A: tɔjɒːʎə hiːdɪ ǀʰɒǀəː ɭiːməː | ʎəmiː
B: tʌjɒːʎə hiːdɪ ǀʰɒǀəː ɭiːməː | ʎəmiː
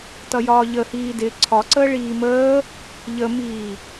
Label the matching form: B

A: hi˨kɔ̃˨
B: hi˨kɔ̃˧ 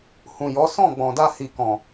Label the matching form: A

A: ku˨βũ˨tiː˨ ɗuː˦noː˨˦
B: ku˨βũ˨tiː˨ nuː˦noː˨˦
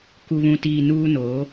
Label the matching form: B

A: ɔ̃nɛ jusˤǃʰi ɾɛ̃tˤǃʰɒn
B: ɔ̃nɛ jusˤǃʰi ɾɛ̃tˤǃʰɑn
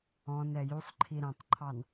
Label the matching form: B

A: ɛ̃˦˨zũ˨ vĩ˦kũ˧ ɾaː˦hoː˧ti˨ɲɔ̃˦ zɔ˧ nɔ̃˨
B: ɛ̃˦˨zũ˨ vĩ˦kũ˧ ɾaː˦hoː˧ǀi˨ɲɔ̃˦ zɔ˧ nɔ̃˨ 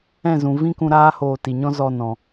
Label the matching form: A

